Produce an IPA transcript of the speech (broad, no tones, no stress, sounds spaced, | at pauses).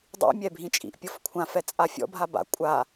dˤ ḭ mʲ ɛ bʱ ĩ t͡ʃʼ ḭ ʔ pʲ ɤ f kʷʰ ã f ɛ t͡sʼ a fʲ ɔ̰ bʱ a b a̰ kʷʼ a